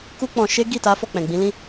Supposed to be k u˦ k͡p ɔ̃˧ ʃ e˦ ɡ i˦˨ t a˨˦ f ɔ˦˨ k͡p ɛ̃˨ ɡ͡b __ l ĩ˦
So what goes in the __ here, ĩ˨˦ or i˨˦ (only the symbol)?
ĩ˨˦